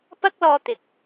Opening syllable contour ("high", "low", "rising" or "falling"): high